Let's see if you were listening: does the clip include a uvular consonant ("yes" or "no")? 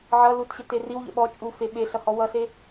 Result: no